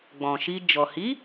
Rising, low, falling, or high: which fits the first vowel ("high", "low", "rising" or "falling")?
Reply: low